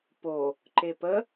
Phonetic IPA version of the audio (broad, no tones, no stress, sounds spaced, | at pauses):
p o | ǃ e p ə